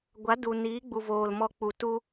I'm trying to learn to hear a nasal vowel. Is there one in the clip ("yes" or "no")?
no